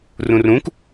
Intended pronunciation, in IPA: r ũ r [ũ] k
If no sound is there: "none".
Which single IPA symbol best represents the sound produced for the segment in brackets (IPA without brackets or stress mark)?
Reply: ũ